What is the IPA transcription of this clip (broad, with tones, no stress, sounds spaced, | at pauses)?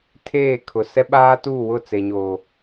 tʰ eː˦˨ kʰ ʊ˨ s ɛ˦ ɓ aː˦ t uː˦˨ w ʊ˦˨ t͡s e˨ ɲ oː˨